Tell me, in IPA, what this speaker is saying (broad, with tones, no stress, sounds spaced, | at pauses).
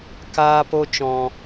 k aː˧ p o˧ t͡ʃ ɔ̃˨